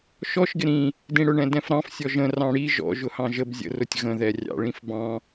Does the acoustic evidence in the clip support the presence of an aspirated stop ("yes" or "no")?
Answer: no